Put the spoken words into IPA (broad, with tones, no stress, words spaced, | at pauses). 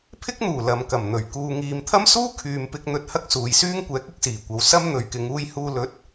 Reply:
pʰɪ˥k̚n̪uː˨˩ lɐ˨mkɐ˨˩mn̪ɵ˨˩ɥ kuː˨ŋiː˨mt̪ʰɐ˥msuː˥ kʰyː˨mpɪ˧k̚n̪ɵ˧t̚ hɐ˥k̚suː˨jsyː˥ŋkʷɛː˨˥k̚ ɪ˨k̚siː˨˩kʷɐ˨˧w sɐ˥mn̪ɵ˨ɥkɪ˨˧ŋ uː˧jhuː˧lɵ˨˥t̚